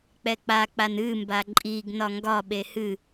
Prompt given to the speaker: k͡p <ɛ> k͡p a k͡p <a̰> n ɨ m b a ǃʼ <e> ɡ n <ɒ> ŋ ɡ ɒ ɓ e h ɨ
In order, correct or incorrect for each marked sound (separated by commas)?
correct, incorrect, incorrect, correct